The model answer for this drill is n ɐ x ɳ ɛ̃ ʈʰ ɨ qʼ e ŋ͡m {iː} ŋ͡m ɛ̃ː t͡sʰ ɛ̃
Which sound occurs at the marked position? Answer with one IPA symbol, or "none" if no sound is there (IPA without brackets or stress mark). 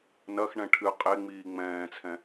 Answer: iː